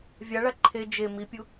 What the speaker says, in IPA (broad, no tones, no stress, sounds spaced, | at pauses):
vʲ a ɭ a ǃʰ e d͡ʒ e m i pʲ u